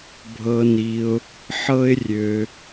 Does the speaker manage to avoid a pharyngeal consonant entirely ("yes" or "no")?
no